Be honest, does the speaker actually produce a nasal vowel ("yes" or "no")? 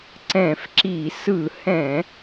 yes